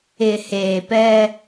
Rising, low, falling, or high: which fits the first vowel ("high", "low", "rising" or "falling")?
low